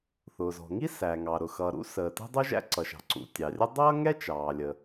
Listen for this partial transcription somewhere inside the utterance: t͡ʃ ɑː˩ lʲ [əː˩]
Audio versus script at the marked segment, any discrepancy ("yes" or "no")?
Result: yes